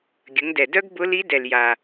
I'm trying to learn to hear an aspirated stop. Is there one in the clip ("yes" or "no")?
no